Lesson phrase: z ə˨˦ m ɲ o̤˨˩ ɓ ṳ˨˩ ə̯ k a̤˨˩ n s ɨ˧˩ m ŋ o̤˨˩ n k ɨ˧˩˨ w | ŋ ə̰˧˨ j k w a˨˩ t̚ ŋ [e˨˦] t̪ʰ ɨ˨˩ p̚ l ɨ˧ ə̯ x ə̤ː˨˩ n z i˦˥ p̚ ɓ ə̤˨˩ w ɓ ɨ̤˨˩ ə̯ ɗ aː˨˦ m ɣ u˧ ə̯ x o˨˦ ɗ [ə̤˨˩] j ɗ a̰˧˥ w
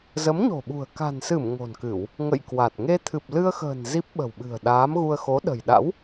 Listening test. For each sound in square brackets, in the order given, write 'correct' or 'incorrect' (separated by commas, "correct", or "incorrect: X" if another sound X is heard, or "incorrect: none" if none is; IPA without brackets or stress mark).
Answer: incorrect: e˧, correct